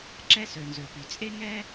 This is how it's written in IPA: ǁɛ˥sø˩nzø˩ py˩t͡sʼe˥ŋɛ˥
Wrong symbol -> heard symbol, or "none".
none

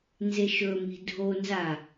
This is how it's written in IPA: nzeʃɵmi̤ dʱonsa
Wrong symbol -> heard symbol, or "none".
s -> z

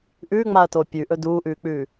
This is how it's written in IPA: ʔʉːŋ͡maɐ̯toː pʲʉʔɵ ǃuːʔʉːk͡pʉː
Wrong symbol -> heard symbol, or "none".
ǃ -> d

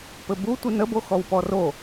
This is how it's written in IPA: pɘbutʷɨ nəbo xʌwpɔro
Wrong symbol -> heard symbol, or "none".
ʌ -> ɔ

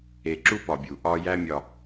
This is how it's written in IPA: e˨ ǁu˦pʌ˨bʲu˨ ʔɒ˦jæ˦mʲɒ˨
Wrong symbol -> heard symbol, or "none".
ʌ˨ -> ɒ˨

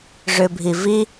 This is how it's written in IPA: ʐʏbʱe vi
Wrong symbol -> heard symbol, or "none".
e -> i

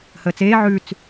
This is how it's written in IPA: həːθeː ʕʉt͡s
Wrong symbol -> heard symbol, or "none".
θ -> t͡s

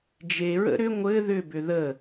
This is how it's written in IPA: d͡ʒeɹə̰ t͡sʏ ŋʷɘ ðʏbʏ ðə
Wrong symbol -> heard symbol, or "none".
t͡s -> ɾ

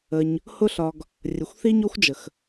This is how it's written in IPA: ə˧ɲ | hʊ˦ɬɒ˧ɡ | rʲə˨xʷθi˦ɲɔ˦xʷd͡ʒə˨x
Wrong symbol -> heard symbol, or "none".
none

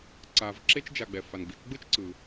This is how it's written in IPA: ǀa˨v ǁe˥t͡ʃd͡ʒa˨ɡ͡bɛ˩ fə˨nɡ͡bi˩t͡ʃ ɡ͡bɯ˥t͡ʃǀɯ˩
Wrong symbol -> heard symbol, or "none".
ə˨ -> a˨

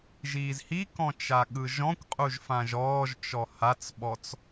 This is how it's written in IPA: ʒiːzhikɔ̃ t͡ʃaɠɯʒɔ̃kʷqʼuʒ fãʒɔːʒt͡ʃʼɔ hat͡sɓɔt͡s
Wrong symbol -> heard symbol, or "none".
t͡ʃʼ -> t͡ʃ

